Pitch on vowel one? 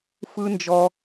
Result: high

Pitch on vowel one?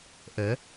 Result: rising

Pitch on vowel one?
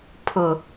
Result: low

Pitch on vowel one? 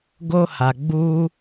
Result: high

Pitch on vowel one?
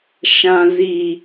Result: low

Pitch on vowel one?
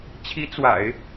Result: rising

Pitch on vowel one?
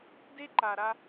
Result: high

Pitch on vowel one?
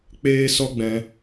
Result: high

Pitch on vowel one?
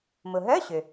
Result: low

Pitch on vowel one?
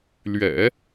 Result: low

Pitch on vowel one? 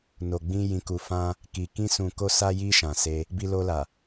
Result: low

